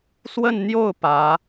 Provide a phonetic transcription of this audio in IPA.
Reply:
swə˥˧nn̪jo˥˩ʊ̯ pä˧˥

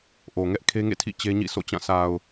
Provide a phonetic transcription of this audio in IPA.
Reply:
ʔo˨ŋɛ˦ʔ kʰe˦ŋḛ˦˨ tʰḭ˦˨t͡ɕe˦ɲḭ˦˨ so̰˦˨t͡ɕã˦˨ sʰa˨ʊ̯

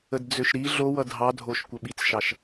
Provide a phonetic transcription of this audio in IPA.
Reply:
ədd͡zøʃɾi ɮowʌ dʱɑdʱoʃ kʷəɓit͡sʃɑʃ

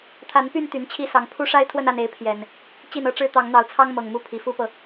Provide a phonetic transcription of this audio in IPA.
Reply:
t̪ʰa˨˦npy˥˨n t̪y˨˦nt͡ɕʰi˦sɑ˨˦ŋ pʰu˦ ʂa˦ɪ̯t̪ʰwə˥˨na˥˨ne˨˦ɪ̯ pʰjɛ˨˩n | t͡ɕi˥˨nɤ˦ʈ͡ʂɻ̩˦ t̪ɑ˨˦ŋn̪ɑ˨˦ʊ̯t͡sʰɑ˦ŋ mɤ˨˩ŋmu˦ pʰi˨˩fu˥˨pɤ˩

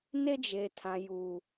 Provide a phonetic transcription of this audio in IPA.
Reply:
ne˦d͡ʒe˨tʰã˨ ju˨

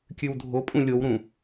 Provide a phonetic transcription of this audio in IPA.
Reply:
kʲʉwdʱopʼũ lʲowɾũ

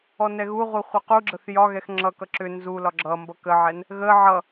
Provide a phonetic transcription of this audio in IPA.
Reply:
ɔnɛɣuʁu χʷʌquɡ͡ǁəθ jɒɣɛx ŋ͡ǁʌkʌ ǁʏ nzulɒ ɡ͡ǁʌmbʌ kəʕɛn | ɣə ʕʌ

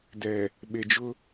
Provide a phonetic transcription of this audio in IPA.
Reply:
dɛ˨ | ɓe˨d͡ʒʊ˦

